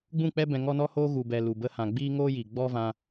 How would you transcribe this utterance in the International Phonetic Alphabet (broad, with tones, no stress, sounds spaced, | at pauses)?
ɡ͡b ũ˦˨ k͡p ɛ˦ b ɛ̃˧ ŋ ɔ˦ n ɔ˦ h oː˦ ɣ u˨ b ɛ˨ l u˨ b ə˧ h ã˨ ɡ͡b iː˦ ŋ oː˦ j i˨ ɡ͡b ɔ˦ v ã˧